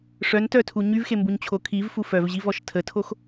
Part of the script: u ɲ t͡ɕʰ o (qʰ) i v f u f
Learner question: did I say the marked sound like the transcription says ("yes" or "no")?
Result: no